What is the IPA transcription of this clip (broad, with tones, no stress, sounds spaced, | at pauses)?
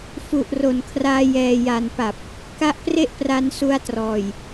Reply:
f u˨˩ ʔ r o˨˩ n kʰ r aː˧ j ɛː˨˩ j a˨˩ n p a˨˩ p̚ | k a˦˥ ʔ p r e˥˩ ʔ p r a˧ n s u˧ a̯ t r ɔː˨˩ j